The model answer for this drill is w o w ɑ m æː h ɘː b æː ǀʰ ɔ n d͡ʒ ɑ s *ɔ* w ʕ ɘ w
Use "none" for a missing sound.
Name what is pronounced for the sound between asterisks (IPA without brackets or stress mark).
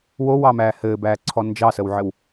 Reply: ə